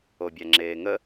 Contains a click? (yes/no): yes